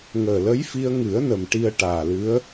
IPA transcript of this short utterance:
ŋ əː˨˩ l ə˧˥ j f i˧ ə̯ ŋ ɨ˨˩˦ ə̯ n ə˨˩ m ʈ i˧ ə̯ ʈ aː˨˩ l ɨ˧˥ ə̯

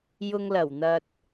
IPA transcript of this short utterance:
j ʊ˨ ŋ l ɐ˨˩ w n̪ ɐ˨ t̚

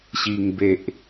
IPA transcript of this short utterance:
ɕ i˨˩ ŋ b e˨ ʔ

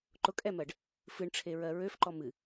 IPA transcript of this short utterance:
ǃ ʊ kʼ ɛ m ɜ ɖ | f ɨ ɳ ʈ͡ʂʰ e ɹ ɜ ɹ ø f ǃ ɔ m ɨ

